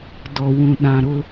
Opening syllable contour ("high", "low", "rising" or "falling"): low